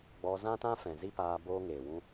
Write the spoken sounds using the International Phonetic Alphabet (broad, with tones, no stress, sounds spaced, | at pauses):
ɡ͡b ɔ˧ z ã˦ t ã˦ f ɛ̃˨ z i˦ p aː˧ b oː˦ ŋ eː˨ w ũ˦